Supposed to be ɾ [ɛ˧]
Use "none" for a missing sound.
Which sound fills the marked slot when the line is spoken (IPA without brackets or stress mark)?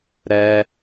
ɛ˧